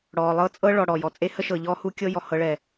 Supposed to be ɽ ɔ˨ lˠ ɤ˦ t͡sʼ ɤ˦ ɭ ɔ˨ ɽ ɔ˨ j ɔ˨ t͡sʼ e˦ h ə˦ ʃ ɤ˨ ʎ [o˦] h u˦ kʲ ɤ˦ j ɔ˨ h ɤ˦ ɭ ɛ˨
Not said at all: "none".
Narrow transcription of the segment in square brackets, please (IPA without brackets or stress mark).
ɔ˦